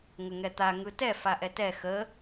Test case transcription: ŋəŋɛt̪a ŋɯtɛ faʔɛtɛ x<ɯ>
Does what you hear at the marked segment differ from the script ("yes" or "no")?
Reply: yes